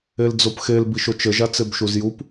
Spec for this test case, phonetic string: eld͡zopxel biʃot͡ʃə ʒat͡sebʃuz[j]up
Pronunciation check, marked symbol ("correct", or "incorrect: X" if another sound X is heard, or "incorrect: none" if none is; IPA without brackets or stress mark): correct